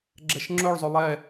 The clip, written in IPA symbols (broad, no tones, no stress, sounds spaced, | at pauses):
ɡ͡ǁ ɛ ʃ ŋ͡ǁ ɵ ɭ zˤ ɵ lˠ ɛ